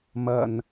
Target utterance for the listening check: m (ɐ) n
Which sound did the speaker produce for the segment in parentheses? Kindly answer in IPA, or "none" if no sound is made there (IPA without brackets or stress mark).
ɐ